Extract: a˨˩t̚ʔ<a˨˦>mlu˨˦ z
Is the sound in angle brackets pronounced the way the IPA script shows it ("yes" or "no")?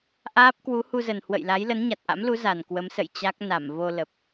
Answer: no